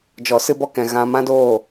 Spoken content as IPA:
d͡ʒ ɔ˨ s ɨ˧ b ɔ˧ k ɛ̃˨ ɣ ã˧ m ã˦ d oː˦˨

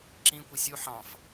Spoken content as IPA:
ǁ ĩ kʷ i sʲ u ħ ɑ̃ f

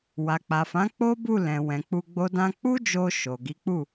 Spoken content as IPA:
w a˨ k͡p a˨ f ã˨˦ k͡p o˦ b u˦˨ l ɛ̃˨ w ɛ̃˨ k͡p u˧ ɡ͡b o˦ d ã˦ k͡p u˦ d͡ʒ o˧ ʃ o˨ ɡ i˨˦ k͡p u˦˨

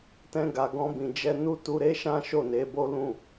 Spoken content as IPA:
t ɛ̃˧ ɡ a˨ ɡ ɔ̃˧ b ĩ˨ d͡ʒ ɛ˧ n u˦ t u˧ ɾ e˦ ʃ ã˦ ʃ o˦˨ n e˨˦ b o˦ l ũ˦˨

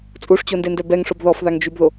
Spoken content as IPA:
t͡sʼ u ʂ t͡ɕ o n d e n d œ b ɛ ŋ ʂ o b ð ɔ f ð a ŋ d͡ʒ y b ð o

